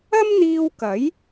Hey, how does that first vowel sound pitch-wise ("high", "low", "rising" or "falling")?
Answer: high